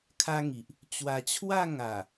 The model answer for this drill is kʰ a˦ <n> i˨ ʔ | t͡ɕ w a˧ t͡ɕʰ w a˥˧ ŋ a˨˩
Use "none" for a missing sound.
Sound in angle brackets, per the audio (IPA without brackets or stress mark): ŋ